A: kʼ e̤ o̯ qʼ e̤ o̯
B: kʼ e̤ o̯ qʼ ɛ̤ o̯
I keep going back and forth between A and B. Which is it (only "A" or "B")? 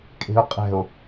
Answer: B